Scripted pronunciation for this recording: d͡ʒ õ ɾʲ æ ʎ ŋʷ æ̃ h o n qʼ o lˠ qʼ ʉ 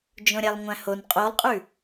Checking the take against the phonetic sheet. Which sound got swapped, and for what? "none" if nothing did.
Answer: ʎ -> lˠ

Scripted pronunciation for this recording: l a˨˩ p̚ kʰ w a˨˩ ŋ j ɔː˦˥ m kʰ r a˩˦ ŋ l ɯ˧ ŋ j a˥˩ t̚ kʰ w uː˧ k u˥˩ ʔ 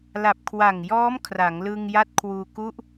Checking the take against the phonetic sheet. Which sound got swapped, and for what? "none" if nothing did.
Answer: none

